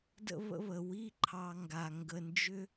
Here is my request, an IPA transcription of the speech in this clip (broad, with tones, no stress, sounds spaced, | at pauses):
d ə̰˦ β ə̰˦ β ə˩ w i˦ ǃʰ ɑ˨ ŋ ɡ a˩ ŋ ɡ ə˨ n d͡ʒ ʏ˥